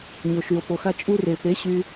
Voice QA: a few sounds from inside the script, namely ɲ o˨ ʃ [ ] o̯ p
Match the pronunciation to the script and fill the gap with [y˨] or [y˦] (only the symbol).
y˨